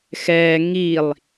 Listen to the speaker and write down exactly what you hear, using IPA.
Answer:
x ɛː ŋ i lˠ

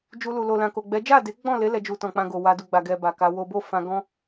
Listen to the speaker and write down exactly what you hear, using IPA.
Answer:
d͡ʒ u˧ l u˨ l o˨ l ã˨ k o˨ ɡ͡b ɛ˨˦ d͡ʒ a˦˨ d e˨˦ ɡ͡b ɔ̃˦˨ l e˨˦ l ɛ˧ d͡ʒ u˨ t ɔ̃˨ k͡p ã˧ ɡ o˨ w a˧ d u˨ ɡ͡b a˨ ɡ ɛ˧ b a˨ k a˨˦ w o˦ b o˦˨ f ã˧ ɡ ɔ̃˦

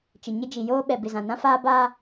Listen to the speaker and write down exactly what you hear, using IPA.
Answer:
t͡ʃ ɪ˨ ɲ ɪ˦ d͡ʒ i˨ j oː˦ ɓ ɛ˨ b ɪ˨ z ã˨ n ã˦ f aː˦ b aː˦

